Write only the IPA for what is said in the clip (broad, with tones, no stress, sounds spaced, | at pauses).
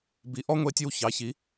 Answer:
b i˨˩ ʔ ɔ˥ ŋʷ e˧˥ tʲ ɨ˦˨ w ç ɑ˩˥ ç i˩˥